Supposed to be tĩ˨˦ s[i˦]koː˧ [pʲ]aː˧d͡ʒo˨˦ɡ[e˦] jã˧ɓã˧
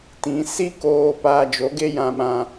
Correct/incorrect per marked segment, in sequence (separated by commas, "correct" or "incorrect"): correct, incorrect, correct